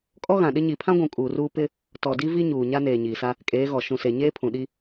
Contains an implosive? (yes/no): yes